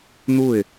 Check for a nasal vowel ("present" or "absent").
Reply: absent